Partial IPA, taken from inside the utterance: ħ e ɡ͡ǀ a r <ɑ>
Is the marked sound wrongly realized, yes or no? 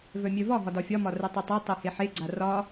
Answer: yes